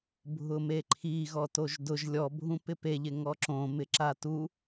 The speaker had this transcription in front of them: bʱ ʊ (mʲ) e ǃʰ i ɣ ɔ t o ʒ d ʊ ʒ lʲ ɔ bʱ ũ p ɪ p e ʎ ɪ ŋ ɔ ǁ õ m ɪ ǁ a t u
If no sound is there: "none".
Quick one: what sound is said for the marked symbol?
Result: m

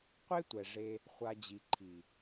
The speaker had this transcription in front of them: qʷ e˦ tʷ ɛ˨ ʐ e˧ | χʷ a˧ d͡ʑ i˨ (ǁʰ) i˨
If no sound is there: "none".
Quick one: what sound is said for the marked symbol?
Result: ǃʰ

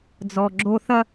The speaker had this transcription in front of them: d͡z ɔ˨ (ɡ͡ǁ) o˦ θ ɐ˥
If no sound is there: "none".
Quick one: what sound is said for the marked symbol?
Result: ɡ͡ǁ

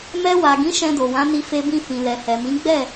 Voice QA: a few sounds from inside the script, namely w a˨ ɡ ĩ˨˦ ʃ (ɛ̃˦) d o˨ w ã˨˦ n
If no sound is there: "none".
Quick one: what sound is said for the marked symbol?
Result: ɛ̃˧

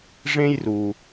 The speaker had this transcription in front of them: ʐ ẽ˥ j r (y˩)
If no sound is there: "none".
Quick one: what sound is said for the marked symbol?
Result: u˩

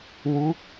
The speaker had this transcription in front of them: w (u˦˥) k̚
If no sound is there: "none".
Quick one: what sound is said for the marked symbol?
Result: u˦˥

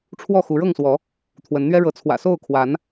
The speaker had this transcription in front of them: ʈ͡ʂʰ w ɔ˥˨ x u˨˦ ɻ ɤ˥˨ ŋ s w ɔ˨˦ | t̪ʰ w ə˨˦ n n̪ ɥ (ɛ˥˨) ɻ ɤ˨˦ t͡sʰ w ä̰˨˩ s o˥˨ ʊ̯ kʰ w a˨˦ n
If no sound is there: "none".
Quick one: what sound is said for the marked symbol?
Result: ɛ˦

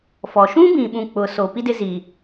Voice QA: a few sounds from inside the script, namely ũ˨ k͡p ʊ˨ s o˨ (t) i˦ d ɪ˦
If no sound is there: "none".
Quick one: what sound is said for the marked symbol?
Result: p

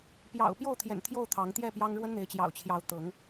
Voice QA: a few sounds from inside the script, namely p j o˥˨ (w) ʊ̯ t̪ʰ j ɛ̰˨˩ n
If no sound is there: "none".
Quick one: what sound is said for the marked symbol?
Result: none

